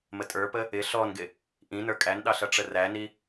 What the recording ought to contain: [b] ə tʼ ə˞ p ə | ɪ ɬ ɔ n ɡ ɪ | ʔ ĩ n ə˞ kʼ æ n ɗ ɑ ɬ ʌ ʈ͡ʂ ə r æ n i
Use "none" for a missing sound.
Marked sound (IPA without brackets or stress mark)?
m